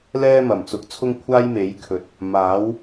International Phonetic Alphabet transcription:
l ɛː˥ m ɐ˨˩ m t͡s ʊ˨˥ k̚ t͡sʰ ʊ˥ ŋ kʷʰ aː˥ j m e˨˥ j kʰ ɵ˨˥ t̚ | m aː˨˥ w

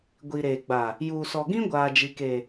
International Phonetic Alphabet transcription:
ɡʷ i˨ ɾ eː˨ ɡ͡b a˨ | j uː˨ s ɔ˨ ɡ ĩ˦ ɡʷ aː˨ d͡ʒ i˨ k e˨

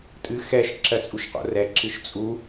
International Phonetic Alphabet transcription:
tʼ ɨ x ɛ ʃ ǁ ɜ t͡sʼ u ʃ q o̰ r ɛ ǁ ɨ ʃ t͡sʼ u

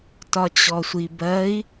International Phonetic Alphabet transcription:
t ɒ t͡ɕ ɔ sʷ i b ɜ i̯

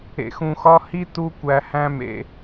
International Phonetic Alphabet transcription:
ḛ˨ x ũ˨ x ɒ˦ h i˦ t u˦ kʷ æ˨ h æ̃˦ m ḛ˨

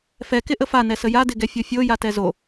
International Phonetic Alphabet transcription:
f ɛ k ɪ ʔ ə f a n ɛ s ə j a d ɪ ɡ ɛ fʲ o fʲ o j a t ɛ z o

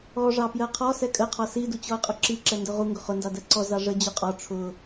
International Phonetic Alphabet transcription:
ɔ ʐ ɑ p j ɜ qʰ ɔ s ɛ kʼ ə qʰ ɒ s i d u t͡ɕ ɔ ə̯ qʼ ʊ ǁ i ǁ ɛ n d ʊ ʁ u ŋ ɡ ʊ χ ʊ n d ɑ d ɜ ǀ ɔ z ɑ ʐ ə d͡ʑ ʊ qʼ ɒ ʈ͡ʂʰ ʊ

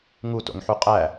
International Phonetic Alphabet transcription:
ŋ u t o̰ ŋ ħ u qʼ æ

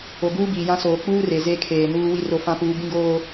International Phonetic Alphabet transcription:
o˨ ɡ uː˦ b iː˨ j ã˦ s oː˨ k͡p uː˦ r e˨ z e˦ kʰ eː˨ n uː˦ w i˦ r o˦ f ã˦ p uː˦ b ĩ˦ ɡ oː˦

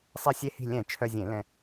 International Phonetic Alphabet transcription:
sˤ e˧˩ sʲ e˧ h i̤˧˩ lʲ ɛ̃˧˩˧ t͡ʃʰ œ˧ zʲ ẽ˧˩˧ l ɛ̃˧

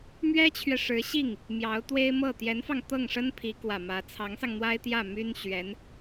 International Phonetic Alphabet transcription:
m ɥ ɛ˥ t͡ɕʰ ɥ ɛ˨ ʂ ɻ̩˧˥ ɕ i˥˩ ŋ | m j ɑ˧˥ ʊ̯ t̪ w e˥ ɪ̯ m ɤ˥˩ t̪ j ɛ˧˥ n f ɑ˧ ŋ t̪ ɤ˥˩ ŋ ʂ ə˥ n pʰ i˧˥ k w ä˨˩ m ä˧˥ t͡sʰ ɑ˧˥ ŋ s ɑ˧ ŋ n̪ w a˥ ɪ̯ t̪ j ä˥˩ m y˥ n ɕ ɥ ɛ˧˥ n

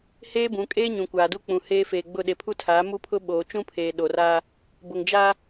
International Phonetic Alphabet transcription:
h eː˦ b ũ˨˦ kʼ eː˦ ɲ ũ˨ kʷ aː˨ d u˦ k͡p ũ˨ h eː˦ f eː˨ ɡ͡b ʊ˦˨ ɗ e˨ pʰ u˦ tʰ aː˨˦ m u˦ pʰ ʊ˦ ɓ oː˨ t͡ʃ ũ˦ pʰ eː˨ ɗ o˨ r a˦ | b ʊ˨ ŋ d͡ʒ a˦

